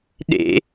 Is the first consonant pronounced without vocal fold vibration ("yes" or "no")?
no